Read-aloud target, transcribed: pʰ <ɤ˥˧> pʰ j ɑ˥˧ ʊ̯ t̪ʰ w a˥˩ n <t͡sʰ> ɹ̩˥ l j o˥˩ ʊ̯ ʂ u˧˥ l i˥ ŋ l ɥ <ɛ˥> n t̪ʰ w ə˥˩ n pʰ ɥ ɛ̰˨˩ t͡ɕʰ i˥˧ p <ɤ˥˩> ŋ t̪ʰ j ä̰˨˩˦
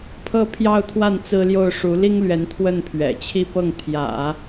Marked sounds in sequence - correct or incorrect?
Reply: correct, incorrect, incorrect, correct

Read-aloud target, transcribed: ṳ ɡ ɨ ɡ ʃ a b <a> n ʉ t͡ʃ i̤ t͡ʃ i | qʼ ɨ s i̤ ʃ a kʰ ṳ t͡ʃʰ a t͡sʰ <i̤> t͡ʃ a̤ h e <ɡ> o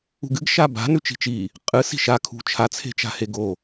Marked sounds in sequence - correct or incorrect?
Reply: incorrect, incorrect, correct

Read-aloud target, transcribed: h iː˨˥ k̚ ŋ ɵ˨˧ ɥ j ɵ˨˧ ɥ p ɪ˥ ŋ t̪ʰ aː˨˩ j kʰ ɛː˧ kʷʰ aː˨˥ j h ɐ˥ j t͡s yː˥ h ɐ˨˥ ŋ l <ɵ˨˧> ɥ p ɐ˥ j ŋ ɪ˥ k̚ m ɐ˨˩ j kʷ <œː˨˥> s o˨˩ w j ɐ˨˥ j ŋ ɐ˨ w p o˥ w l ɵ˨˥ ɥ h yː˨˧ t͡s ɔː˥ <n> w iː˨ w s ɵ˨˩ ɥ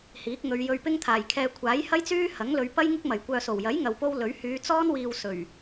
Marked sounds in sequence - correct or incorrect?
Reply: correct, incorrect, correct

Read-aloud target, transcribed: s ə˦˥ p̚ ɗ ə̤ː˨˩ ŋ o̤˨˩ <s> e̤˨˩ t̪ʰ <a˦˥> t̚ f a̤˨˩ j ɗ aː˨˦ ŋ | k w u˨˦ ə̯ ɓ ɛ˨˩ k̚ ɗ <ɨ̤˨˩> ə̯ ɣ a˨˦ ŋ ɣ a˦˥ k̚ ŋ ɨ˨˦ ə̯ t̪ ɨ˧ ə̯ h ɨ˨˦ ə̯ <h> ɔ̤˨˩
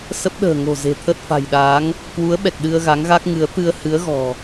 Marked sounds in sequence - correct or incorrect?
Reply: incorrect, incorrect, incorrect, incorrect

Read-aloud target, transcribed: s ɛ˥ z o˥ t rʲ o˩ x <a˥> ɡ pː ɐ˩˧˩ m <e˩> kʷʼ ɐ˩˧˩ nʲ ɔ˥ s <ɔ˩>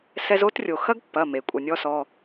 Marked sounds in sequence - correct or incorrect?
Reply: incorrect, correct, incorrect

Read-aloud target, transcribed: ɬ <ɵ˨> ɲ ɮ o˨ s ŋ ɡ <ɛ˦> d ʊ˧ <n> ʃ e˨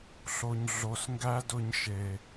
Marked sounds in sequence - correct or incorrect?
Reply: incorrect, incorrect, incorrect

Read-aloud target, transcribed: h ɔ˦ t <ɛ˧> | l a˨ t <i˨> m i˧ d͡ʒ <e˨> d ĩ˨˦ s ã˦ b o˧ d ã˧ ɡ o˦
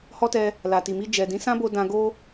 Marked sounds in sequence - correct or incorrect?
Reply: correct, correct, incorrect

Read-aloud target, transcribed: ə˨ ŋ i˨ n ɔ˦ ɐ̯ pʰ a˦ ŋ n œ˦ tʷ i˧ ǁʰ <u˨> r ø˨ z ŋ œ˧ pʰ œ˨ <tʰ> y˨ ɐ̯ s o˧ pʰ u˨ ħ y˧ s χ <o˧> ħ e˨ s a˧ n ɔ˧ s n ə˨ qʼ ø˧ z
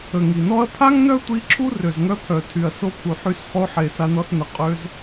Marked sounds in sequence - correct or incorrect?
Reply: incorrect, correct, correct

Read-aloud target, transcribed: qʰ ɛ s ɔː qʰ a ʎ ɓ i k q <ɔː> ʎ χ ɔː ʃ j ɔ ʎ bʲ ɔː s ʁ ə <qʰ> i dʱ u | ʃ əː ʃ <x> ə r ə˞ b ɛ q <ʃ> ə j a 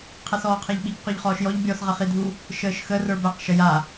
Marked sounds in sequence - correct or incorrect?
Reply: incorrect, incorrect, correct, correct

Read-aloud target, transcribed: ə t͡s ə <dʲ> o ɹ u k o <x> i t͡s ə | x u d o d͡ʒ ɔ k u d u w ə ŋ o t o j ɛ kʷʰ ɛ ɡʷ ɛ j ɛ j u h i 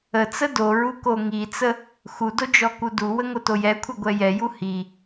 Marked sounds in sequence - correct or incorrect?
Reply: incorrect, incorrect

